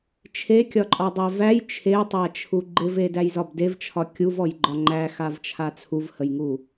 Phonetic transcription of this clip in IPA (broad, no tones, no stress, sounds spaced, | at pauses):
t͡ʃʰ e kʲ ɒ ǃʼ ɒ dˤ æ v æ j t͡ʃʰ e tˤ æ t͡ʃʰ u ɡ͡ǃ ɪ v e d æ j z ɒ b d e v t͡ʃʰ ɒ kʲ u v ɔ j ɡ͡ǃ ɒ ŋ͡ǃ æ x a v t͡ʃʰ a t͡sʰ u v h ə j ŋ u